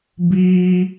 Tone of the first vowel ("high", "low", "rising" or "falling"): high